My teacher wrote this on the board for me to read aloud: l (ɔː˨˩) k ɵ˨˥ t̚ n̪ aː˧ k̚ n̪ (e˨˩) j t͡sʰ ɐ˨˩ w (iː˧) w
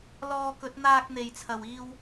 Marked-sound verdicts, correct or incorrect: incorrect: ɔː˧, correct, correct

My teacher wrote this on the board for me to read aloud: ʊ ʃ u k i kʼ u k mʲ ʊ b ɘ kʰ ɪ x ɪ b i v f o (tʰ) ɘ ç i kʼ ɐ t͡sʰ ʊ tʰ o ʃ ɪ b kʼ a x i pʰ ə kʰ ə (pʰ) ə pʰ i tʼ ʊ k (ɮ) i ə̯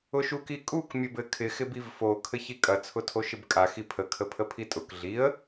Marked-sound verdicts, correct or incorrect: incorrect: kʰ, correct, correct

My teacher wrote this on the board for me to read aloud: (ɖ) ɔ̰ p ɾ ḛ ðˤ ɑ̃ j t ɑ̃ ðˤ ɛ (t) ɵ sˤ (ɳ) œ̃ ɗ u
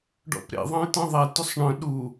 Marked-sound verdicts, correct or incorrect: correct, correct, correct

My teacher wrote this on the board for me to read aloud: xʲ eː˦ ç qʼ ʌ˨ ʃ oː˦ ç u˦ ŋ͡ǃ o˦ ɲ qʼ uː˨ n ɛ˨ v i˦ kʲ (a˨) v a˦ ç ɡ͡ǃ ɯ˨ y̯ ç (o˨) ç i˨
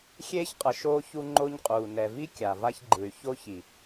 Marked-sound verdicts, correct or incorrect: correct, incorrect: o˦

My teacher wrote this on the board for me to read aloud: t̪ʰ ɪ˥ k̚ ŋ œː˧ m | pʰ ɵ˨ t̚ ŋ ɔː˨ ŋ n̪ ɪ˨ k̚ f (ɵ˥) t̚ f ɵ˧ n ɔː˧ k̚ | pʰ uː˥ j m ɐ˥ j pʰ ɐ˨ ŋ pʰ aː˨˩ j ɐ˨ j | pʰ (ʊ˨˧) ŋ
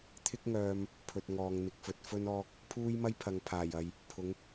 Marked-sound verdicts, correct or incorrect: incorrect: ɵ˨, correct

